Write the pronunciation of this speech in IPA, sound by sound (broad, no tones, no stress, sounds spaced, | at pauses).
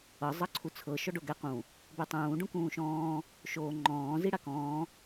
ɤ zˤ ɤ ǀʰ u t͡sʰ ɤ ʃ ɔ ɖ o ɡ ɛ q ũ | b e tˤ ũː ɖ ũ k ũː ʃ ɔ̃ː | ʃ oː ŋ͡ǃ ɔ̃ː z i ɽ a k ɔ̃ː